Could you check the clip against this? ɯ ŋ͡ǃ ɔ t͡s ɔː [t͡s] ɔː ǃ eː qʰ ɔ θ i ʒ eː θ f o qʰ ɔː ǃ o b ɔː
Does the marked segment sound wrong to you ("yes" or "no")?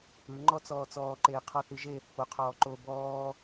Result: no